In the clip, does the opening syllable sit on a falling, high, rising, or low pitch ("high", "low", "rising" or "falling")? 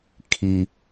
high